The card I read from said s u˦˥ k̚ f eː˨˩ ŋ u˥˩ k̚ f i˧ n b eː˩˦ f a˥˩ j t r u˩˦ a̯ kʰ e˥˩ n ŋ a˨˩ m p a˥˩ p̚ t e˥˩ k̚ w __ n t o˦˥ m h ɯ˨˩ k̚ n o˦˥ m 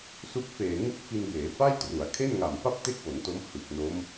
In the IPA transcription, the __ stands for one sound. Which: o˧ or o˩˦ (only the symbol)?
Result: o˩˦